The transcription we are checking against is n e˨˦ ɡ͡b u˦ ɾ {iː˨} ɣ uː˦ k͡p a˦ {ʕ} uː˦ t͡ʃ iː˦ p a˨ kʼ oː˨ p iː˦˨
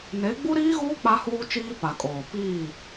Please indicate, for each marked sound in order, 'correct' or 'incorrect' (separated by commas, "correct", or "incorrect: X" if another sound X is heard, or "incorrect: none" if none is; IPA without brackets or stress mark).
incorrect: iː˦, incorrect: h